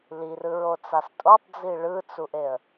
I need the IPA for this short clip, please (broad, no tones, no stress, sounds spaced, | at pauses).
l i r ɯ ɹ o t͡s a s tʼ o tˤ d͡z i ɭ ɯ t͡s u ʔ e ə̯